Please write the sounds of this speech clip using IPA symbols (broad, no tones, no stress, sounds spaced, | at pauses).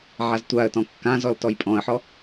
ʕ a z tʷ a ə̯ t ɔ̃ kː ã z ɔ l t ɔ j pʼ ɔ̃ ə̯ ħ ɔ